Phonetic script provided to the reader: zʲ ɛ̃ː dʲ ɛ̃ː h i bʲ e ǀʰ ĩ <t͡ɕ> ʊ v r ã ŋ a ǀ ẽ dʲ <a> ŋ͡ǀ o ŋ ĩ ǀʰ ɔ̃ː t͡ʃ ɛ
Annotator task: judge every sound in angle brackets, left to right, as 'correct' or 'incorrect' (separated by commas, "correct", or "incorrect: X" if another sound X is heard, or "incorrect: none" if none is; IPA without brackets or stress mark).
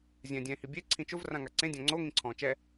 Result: incorrect: t͡ʃ, incorrect: ã